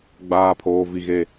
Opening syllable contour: high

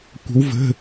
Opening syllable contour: rising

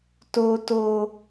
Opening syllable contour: high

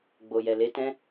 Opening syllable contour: low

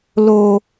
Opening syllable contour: low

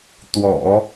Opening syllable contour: low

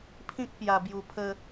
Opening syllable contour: high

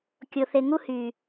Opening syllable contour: low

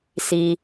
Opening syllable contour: low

